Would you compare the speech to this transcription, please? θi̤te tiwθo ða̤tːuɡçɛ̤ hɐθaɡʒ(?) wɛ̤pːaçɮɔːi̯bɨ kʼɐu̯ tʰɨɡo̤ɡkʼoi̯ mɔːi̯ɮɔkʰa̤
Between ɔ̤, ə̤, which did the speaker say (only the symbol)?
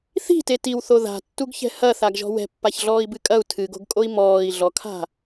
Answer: ɔ̤